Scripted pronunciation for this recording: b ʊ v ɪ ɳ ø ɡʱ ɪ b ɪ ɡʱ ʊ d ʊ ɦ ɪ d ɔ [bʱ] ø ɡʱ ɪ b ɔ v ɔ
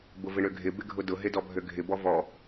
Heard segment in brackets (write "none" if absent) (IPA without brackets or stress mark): bʱ